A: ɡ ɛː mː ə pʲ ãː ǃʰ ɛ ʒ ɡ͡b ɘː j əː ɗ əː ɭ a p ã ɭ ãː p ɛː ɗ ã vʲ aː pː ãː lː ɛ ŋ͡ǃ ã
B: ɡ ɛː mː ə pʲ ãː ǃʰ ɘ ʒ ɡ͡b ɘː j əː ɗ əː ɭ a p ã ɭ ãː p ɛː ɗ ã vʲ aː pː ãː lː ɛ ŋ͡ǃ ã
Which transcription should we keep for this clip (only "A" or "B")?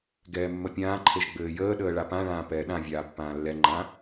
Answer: B